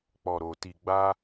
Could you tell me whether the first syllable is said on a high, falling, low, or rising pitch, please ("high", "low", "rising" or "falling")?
low